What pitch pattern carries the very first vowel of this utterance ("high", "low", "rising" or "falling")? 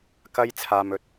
high